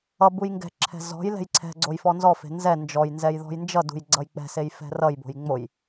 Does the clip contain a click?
yes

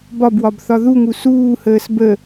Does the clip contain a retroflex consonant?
no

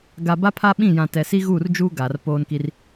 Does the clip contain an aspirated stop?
yes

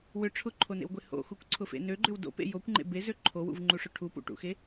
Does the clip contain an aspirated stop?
yes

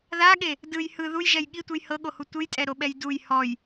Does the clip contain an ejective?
yes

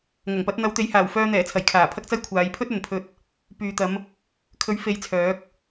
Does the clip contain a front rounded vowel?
yes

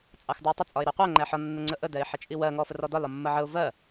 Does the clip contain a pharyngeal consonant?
yes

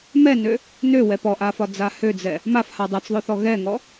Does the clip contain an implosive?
no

